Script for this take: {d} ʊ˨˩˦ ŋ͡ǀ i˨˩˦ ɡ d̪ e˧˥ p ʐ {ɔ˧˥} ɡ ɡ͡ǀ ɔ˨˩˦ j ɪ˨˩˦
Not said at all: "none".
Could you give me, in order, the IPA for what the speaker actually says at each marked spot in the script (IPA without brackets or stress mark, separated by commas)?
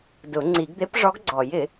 d, ɔ˧˥